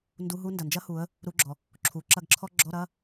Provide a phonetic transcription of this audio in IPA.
n d u˧˥˧ ɦ u˥ n d ɐ˩ n d͡ʒ ɐ˥ h u˩˧ ə̯ | ɾ u˧˥˧ ɡ͡ǁ ɔ˩ | ǁʰ u˩˧ ǁ ɐ˦˨ ɡ ǁʰ ɔ˥ ɡ͡ǁ ɔ˧˥˧ ɾ ɐ˧˥˧

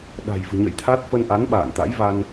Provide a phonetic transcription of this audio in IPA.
ɗ a̤˨˩ j v ɨ̤˨˩ ɲ ə̰˧˨ j t̪ʰ a˦˥ t̚ f ə˧ n ʔ a˨˦ n ɓ a̰ː˧˨ n t̪ a̰˧˥ j v a˧ n

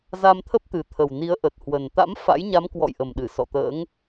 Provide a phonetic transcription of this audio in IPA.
z a˧ m t̪ʰ ə˦˥ p̚ t̪ ɨ˨˩ t̪ʰ ə˨˩ w n i˨˦ ə̯ ʔ ə˨˩ t̚ h w ə˨˩ n t̪ a̰˧˥ m f a̰˧˥ j ɲ a˨˦ m k w ɔ̰˧˨ j ʔ ə˨˩ m ɗ ɨ˧˩ s ɔ̰˧˨ t̪ ə̰ː˧˥ ŋ

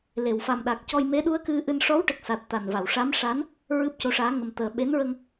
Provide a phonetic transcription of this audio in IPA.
l e˨˩˨ w f a˨˩ m ɗ a˨˩ k̚ c ɔ˧ j m e˧˥ ɗ u˧˥ ə̯ k ɨ˧ ʔ ɨ˧ n ʂ ɔ˧˥ w ʈ ə˨˩ k̚ s a˨˩ t̚ t̪ a˨˩ n v a˨˩˨ w ʂ a˧˥ m ʂ a˧˥ n | ɹ ɨ˦˥ p̚ c o˧˥ ʂ aː˧˥ ŋ ə˨˩ m t̪ əː˨˩ ɓ e˧˥ n ɹ ə˧ ŋ

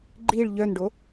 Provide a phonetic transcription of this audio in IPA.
ɡ͡ǃ i ɭ ʎ œ n ɖ o

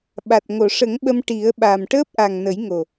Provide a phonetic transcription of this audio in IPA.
ɓ a˨˩ t̚ ŋ o˨˩˨ ʂ ə˨˩˦ ŋ ɓ ə˧ m ʈ i˨˩˦ ə̯ ɓ a˨˩ m ʈ əː˦˥ p̚ ʔ a˨˩ ŋ n ə˨˩˦ j ŋ o˨˩

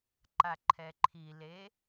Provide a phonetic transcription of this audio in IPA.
ǃ a ǃʰ ɛ ǃʰ i l e

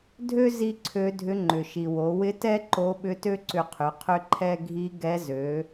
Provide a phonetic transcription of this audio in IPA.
dʱ ø˥ z i˥ ǀʰ ø˧˥ dʱ ʏ˧˥ ŋ͡ǃ ʏ˩ ʃ i˩ w o˩˧ w ɪ˧˥ t ɛ˥ ǃ o˧˥ ɓ ʏ˧˥ t ø˥ ǀ ʏ˧ qʰ ʏ˩˧ qʰ ʏ˥ ǃʰ ɛ˥ ɡʱ i˧˥ ɡ ɛ˧˥ z ø˩˧

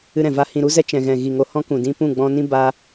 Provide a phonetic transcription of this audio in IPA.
ɨ˧ ɾ ɛ̃˨ v a˧ h ĩ˨ ɾ u˧ z ɛ˧ t͡ʃ ɛ̃˨ ɣ ɛ̃˨ ɣ i˨ ŋ o˨ h ɔ̃˦ k ũ˨ d ĩ˧ p ũ˦˨ ɡ͡b ɔ̃˧ n ĩ˦ b a˦

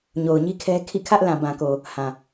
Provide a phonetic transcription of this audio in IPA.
ɲ o˨ ʊ̯ ɲ i˦ kʰ ɛ˦ kʰ ḭ˦˨ kʰ ä˦ ʔ l ã˨ b ã˨ k o˨ | h ã˨

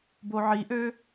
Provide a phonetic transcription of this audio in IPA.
b o ʕ i ʔ ø

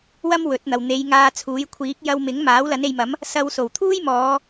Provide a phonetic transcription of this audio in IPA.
w ɐ˥ m w ɵ˨˥ t̚ n̪ ɐ˨ w n̪ e˨˧ j ŋ aː˧ t͡sʰ uː˨˥ j kʷʰ iː˨˥ k̚ j ɐ˧ w m ɪ˨˥ ŋ m aː˨˥ w l ɐ˨˥ n e˨˧ j m ɐ˨˥ m | s ɐ˧ w s o˨˩ w t̪ʰ uː˥ j m ɔː˨˧

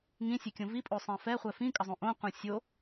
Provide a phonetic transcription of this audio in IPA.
ŋ ĩ sʲ ɛ kʲ õ v i pʼ o sˤ ɛ̃ f ɛ χʷ ɛ f ĩ kʼ ʌ zˤ õ ʔ õ qʷ ɛ̃ sʲ o

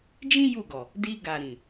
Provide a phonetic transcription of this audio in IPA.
d͡ʒ ĩ˦ j u˦˨ ɡ ɔ˨ | d i˧ ɡ a˨ ɾ ĩ˨

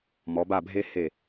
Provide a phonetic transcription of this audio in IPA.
m ɔ˨˦ b a˥˧ bʱ e˥ h e˧˩

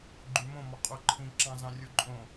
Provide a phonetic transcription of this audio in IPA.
ɡ͡ǃ y m õ m ɔ qʼ u ǃʰ ĩ ǁ ɑ̃ z ɑ̃ rʲ u ǃʼ õ

